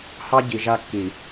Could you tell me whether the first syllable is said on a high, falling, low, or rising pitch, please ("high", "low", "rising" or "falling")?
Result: high